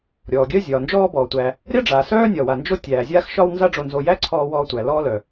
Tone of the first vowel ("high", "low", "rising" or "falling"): low